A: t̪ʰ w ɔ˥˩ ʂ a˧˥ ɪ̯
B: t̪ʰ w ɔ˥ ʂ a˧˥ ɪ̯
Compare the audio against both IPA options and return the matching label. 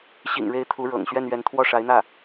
A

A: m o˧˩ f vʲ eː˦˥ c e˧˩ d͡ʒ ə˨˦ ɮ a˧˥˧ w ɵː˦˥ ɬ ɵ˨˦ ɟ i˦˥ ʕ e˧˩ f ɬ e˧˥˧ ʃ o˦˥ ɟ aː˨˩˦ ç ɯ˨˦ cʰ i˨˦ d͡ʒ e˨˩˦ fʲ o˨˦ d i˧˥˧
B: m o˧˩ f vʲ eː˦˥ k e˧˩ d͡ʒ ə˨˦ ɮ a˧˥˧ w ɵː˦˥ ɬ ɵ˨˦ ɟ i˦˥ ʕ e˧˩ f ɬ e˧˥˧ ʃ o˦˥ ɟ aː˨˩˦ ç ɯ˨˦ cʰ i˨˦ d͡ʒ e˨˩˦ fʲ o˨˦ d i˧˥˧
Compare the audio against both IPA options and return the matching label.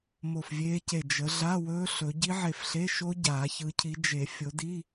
A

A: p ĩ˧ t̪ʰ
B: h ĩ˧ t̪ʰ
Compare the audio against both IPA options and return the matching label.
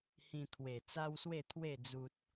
B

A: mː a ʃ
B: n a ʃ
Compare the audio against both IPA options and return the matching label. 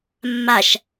A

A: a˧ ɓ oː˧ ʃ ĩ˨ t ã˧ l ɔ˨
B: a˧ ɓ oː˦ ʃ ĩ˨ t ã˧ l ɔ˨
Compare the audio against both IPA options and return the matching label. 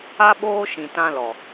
A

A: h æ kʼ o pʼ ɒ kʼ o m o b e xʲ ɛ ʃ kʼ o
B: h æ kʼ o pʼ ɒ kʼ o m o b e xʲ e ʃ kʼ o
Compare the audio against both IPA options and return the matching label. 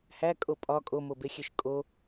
B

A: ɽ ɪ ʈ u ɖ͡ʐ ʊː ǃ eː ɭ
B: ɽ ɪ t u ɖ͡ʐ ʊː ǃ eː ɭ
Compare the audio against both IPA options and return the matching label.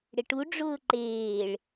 A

